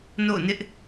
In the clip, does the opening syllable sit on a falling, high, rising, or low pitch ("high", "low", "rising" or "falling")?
falling